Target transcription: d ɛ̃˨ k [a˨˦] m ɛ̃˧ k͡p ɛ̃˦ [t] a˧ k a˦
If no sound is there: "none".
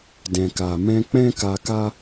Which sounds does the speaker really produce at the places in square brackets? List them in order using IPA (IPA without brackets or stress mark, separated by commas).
a˨, k